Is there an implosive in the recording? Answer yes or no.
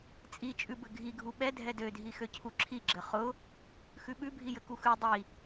yes